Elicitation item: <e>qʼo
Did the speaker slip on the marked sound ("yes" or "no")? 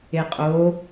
no